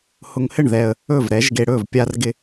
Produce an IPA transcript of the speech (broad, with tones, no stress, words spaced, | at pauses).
hʊ˧ŋhɘ˥˩ɳ ðɛ˧ə̯ | ɵ˥˩v ɾɛ˨˥ʒɡe˧ɽɵ˥˩v pʲa˧rɡɪ˧